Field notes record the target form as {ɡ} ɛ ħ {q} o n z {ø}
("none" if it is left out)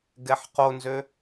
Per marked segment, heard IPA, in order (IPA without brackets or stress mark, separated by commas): ɡ, q, ø